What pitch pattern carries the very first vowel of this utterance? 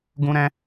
high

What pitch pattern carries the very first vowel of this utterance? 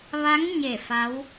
rising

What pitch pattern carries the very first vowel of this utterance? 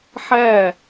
falling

